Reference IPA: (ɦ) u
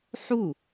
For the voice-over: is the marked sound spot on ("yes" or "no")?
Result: no